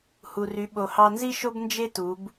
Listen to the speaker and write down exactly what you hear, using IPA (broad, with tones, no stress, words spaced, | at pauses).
hu˩ry˩˧ ɓo˩hɑ˧nzi˥ʃo˥b nd͡ʒe˥tu˩˧b